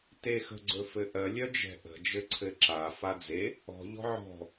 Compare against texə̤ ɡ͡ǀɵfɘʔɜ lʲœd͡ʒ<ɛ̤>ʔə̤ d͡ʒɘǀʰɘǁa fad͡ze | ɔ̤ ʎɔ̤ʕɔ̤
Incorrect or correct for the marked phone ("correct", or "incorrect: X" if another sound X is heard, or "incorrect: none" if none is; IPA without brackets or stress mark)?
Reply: correct